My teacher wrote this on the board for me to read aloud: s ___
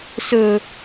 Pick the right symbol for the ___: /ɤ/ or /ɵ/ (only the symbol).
ɵ